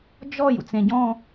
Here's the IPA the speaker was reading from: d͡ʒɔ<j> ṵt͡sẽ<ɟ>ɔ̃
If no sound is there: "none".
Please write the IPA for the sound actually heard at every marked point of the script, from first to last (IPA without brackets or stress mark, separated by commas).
j, ɟ